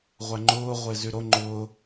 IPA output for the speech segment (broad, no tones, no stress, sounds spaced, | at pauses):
ʁʷ æ ŋ͡ǃ ʊː ʁʷ ɪː z y ɾ o ŋ͡ǃ ʊː